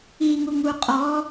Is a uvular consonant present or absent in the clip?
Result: present